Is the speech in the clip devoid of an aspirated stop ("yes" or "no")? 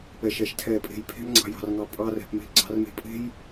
no